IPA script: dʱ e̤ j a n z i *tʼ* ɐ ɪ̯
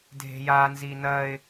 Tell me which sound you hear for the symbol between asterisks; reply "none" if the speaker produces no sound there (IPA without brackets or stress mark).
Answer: n